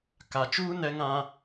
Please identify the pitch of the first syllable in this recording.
low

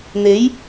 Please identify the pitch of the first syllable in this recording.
rising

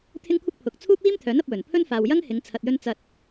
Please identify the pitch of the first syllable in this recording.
high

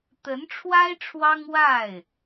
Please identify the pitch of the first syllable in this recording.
rising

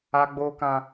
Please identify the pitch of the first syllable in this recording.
high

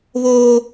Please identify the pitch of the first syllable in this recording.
high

